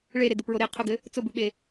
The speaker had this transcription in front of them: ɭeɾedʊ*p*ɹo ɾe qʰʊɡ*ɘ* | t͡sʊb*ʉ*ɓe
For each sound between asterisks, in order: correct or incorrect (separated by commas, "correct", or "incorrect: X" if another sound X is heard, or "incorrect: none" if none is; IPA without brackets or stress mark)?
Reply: correct, correct, correct